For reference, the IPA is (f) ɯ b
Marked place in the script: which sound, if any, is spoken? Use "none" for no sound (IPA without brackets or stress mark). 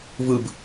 v